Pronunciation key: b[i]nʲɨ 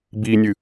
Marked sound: correct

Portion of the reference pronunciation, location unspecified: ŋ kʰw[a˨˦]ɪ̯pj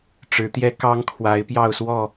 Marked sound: correct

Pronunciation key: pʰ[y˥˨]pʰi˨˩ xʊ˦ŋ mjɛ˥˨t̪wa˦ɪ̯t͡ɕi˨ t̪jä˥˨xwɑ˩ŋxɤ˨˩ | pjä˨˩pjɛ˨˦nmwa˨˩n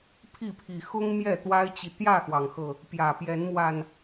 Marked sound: incorrect: i˥˨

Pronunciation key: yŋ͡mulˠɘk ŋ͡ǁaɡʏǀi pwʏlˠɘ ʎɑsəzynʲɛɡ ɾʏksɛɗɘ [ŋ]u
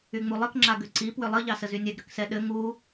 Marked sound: correct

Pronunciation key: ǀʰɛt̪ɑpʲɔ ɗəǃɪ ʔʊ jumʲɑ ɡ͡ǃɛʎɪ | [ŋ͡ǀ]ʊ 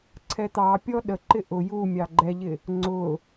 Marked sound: correct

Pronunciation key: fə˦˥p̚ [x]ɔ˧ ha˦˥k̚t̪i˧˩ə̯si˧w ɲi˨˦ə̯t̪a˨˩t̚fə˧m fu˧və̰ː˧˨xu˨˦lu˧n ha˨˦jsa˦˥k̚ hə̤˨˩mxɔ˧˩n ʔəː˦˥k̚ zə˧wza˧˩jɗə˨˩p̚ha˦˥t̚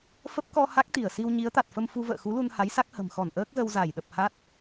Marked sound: incorrect: k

